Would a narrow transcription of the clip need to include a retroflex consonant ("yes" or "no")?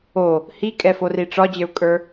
yes